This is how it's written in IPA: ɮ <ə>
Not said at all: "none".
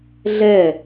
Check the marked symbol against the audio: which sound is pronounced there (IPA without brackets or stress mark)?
ɛ